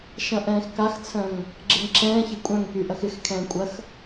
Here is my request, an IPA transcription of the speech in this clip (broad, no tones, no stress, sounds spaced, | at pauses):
ʃ ɐ̃ ʔ ɛ̃ː x k a x t͡sʰ œ̃ ŋ | ɡ͡ǁ ɪ ŋ ǁ ɛ̃ː ç ɐ kʷʼ œ̃ ŋ k y ʔ ɐ x ɪ x kʰ ɛ̃ː kʷʼ ɐ x